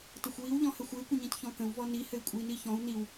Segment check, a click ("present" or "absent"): absent